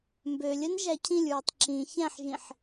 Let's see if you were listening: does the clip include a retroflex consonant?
no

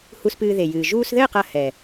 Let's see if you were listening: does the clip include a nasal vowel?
no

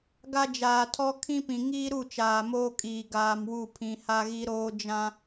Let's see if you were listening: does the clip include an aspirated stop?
yes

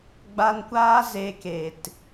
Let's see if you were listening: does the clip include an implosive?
no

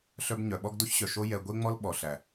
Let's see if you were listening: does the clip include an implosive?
yes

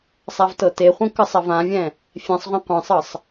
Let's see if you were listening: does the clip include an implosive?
no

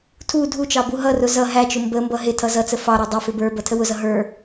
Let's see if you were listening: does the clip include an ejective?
no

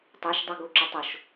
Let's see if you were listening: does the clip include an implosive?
no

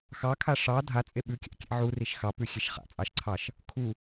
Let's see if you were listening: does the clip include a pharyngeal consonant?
yes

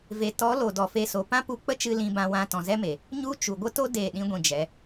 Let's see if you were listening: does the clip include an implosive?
yes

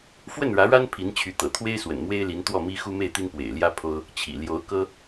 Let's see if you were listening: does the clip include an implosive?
no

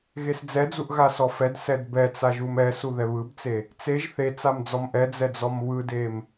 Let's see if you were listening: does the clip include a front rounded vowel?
no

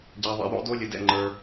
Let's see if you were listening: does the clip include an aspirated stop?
no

